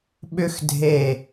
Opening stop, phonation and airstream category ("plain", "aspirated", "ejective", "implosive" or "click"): implosive